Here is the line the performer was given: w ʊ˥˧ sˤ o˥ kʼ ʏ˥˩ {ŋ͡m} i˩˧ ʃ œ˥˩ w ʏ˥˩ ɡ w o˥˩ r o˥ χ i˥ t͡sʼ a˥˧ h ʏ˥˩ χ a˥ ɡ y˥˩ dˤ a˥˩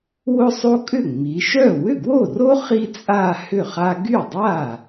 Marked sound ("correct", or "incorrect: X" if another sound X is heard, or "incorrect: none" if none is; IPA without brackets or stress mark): correct